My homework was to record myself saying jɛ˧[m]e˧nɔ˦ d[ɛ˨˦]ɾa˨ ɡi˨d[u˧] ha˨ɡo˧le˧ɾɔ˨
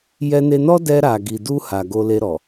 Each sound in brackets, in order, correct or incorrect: incorrect, incorrect, correct

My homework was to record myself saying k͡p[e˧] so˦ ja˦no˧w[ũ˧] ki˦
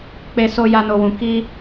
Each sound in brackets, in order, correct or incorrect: incorrect, correct

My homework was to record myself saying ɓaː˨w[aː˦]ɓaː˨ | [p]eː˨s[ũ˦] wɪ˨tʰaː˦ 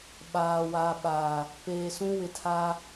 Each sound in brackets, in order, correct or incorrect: incorrect, correct, correct

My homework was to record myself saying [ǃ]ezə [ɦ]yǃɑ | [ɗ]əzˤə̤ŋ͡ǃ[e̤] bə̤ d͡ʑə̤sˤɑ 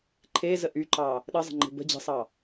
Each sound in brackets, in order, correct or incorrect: incorrect, incorrect, correct, correct

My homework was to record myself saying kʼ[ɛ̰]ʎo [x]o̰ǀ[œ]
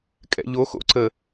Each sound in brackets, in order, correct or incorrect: correct, correct, incorrect

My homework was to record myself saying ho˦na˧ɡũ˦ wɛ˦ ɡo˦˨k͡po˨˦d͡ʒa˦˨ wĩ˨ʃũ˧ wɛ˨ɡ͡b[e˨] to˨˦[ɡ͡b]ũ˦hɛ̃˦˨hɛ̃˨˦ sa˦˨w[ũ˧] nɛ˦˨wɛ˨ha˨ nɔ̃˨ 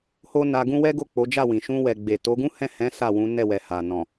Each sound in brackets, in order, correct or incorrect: correct, incorrect, incorrect

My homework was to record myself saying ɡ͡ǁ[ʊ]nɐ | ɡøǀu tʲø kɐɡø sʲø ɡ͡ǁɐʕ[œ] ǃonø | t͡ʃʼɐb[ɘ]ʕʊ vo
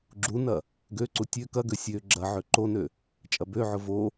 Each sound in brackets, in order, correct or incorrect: incorrect, incorrect, incorrect

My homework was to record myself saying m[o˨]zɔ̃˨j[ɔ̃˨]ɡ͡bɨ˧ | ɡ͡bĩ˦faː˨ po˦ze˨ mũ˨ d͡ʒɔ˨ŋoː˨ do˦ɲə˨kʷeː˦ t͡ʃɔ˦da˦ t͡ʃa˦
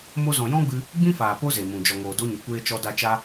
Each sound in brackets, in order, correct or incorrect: incorrect, incorrect

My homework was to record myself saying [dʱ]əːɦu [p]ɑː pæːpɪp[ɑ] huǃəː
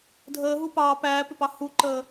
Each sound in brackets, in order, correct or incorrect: correct, correct, correct

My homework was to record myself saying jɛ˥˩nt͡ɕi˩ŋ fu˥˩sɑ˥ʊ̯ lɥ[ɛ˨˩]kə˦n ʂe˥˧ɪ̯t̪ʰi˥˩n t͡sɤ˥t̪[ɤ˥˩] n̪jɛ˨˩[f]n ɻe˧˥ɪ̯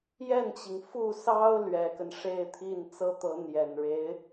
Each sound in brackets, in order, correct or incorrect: correct, incorrect, incorrect

